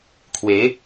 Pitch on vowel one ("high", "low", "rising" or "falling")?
rising